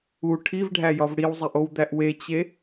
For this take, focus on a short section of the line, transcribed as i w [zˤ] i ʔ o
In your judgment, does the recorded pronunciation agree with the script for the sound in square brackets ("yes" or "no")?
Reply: yes